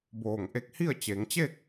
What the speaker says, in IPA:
b oː˧˩ ŋ ʔ e˧˥ k̚ h i˥˨ ə̯ t͡ɕ e˩˧ ŋ t͡ɕ e˥˨ k̚

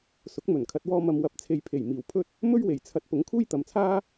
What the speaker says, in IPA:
s ʊ˨˥ k̚ m ɵ˨˩ n kʰ ɐ˨ t̚ w ɔː˧ m ɐ˨ m w ɐ˨ p̚ t͡sʰ e˨ j pʰ e˨˩ j m iː˨˩ w pʰ ɵ˥ t̚ | m ɵ˥ ɥ w e˨˩ j t͡sʰ ɐ˨˥ t̚ p ʊ˨˥ ŋ kʰ uː˥ j t̪ ɐ˨ m t͡sʰ aː˥

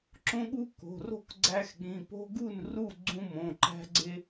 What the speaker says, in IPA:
ǁ õ˦ ɠ u˦ k o̤˩˧˩ r o̤˥˩ k ɡ͡ǀ æ˦ x ɠ ĩ˩˧˩ p o̤˦ ɡ u˥˩ n r u˥˩ ɡ͡ǀ ũ˦ m õ˩˧˩ ǃ æ̤˦ ɡ͡ǀ e˦

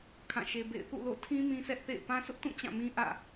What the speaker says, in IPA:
kʰ ã˦˨ ʃ e˦ b ḛ˦˨ ɪ̯ θ ṵ˦˨ l o̰˦˨ tʰ ĩ˦ m ĩ˦ sʰ ɛ˦ ʔ θ ḛ˦˨ ɪ̯ p ã˦ sʰ ʊ˦ ʔ t ũ˦˨ t͡ɕ ã˦˨ m ĩ˦ ʔ ä̰˦˨

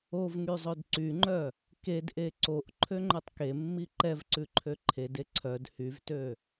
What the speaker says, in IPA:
o v ŋ y zˤ ɵ d ǀ y ŋ͡ǃ œ | k e d ʔ e ǀ o ʔ ǃʰ ø ŋ͡ǃ ɵ tˤ k e mː i ǃ ɛ v ǀ ʉ ǃʰ ø ǃʰ e d e ǀʰ œ d h y v t ø

